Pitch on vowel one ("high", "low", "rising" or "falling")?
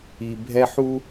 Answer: low